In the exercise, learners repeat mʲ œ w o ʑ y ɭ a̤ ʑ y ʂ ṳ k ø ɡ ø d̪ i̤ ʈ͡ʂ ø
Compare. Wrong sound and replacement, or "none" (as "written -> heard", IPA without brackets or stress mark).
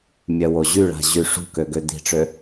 none